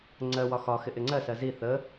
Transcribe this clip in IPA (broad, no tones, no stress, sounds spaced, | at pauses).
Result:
ŋ͡ǀ ɜ w ɒ x ɒ x ɪ ʔ ɪ ŋ͡ǀ ɜ s ɜ z i θ ə